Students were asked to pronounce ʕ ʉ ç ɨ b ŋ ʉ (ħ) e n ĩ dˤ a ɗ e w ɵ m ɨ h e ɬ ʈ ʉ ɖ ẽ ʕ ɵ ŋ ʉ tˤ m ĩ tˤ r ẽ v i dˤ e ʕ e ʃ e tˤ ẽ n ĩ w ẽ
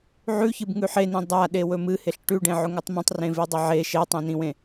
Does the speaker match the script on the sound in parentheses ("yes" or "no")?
yes